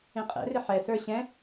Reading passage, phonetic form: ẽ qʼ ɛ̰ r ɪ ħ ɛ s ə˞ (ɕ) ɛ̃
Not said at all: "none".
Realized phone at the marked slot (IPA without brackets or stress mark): ɕ